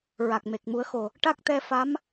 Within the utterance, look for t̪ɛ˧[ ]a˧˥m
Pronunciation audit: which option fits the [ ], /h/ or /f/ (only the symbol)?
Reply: f